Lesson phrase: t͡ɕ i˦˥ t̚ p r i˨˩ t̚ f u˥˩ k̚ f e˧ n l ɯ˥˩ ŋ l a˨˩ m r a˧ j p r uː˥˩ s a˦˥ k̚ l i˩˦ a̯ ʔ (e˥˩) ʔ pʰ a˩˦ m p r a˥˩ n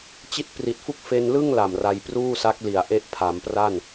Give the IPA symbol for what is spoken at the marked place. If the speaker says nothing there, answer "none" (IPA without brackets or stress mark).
e˦˥